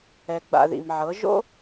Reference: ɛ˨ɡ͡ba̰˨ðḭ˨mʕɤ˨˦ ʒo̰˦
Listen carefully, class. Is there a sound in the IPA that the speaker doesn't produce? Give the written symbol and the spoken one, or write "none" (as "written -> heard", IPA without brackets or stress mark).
none